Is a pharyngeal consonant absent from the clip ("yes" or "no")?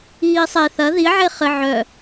no